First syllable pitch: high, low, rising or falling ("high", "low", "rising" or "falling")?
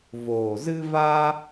low